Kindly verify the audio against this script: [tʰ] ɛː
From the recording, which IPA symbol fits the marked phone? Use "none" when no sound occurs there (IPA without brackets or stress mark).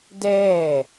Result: d